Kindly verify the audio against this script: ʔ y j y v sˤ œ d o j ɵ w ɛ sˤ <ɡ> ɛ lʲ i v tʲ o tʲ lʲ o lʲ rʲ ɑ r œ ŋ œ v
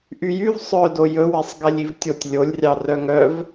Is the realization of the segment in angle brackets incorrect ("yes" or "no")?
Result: no